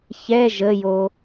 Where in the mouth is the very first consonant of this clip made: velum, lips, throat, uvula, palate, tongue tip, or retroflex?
palate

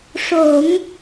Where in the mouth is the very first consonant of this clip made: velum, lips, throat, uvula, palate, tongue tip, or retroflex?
retroflex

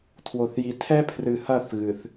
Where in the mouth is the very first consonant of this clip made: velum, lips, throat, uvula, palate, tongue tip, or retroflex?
tongue tip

